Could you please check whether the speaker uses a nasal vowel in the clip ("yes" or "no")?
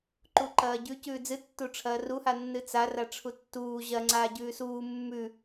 no